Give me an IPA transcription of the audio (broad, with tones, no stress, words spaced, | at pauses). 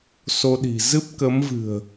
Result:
so˧ɗi̤˨˩ zɨ˦˥p̚kə˨˦mvɨ̤˨˩ə̯